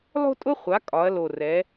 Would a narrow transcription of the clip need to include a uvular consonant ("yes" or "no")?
yes